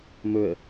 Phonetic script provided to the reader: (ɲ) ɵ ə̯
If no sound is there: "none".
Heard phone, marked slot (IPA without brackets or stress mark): m